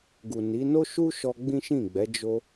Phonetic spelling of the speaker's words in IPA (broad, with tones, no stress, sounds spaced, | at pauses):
ɡ u˨ n i˨˦ n o˦ ʃ u˦ ʃ ɔ˧ ɡ͡b ĩ˦ ʃ ĩ˦˨ ɡ͡b ɛ˨˦ d͡ʒ o˧